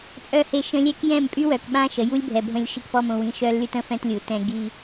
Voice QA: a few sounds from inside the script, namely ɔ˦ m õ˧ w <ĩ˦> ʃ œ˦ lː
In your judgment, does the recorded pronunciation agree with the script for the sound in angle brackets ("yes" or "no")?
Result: no